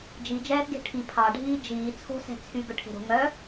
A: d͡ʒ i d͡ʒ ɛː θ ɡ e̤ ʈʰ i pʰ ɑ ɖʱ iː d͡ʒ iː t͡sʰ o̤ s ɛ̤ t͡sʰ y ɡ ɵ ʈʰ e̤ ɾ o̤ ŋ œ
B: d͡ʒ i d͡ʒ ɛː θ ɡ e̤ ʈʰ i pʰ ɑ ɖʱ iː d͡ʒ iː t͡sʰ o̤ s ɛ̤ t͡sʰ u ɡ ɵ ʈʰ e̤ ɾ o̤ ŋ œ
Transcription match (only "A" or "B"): A